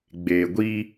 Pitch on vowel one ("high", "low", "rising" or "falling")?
low